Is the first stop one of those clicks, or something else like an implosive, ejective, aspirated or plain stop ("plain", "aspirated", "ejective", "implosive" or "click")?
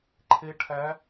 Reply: click